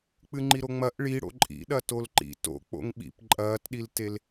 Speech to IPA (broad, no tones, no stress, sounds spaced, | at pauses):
k͡p ɨ ŋ͡ǃ i ɾ o ŋ͡m ɐ ʔ ɭ i ɽ o̰ ǃʼ ḭ ɗ ɐ t o l ǃ ḭ t o̰ k͡p o̰ ŋ ɓ ḭ p ǃʼ ɐː t ɗ i l t e l